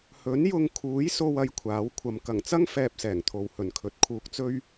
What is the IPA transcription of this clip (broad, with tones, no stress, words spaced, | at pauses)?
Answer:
hɵ˨˥njʊ˧ŋ kʰuː˨˥jso˧wɐ˨˧j kʷʰaː˨˥wkʷʰɐ˧m kɐ˨˩ŋt͡sɐ˥ŋ fɛː˧p̚sɛː˨˩ŋt̪ʰo˨w hɵ˨˩nkʰɵ˨˥t̚ kʰuː˧k̚t͡sɵ˥ɥ